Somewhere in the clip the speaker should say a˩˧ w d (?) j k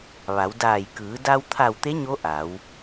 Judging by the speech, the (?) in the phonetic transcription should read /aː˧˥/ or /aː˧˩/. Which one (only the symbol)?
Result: aː˧˩